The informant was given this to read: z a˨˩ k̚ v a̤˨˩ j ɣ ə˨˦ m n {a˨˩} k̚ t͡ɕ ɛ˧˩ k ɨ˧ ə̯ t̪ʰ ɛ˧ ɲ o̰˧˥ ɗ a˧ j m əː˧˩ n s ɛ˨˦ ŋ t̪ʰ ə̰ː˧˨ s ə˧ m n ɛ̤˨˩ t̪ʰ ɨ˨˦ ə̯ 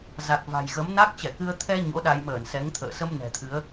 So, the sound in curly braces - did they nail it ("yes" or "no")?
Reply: no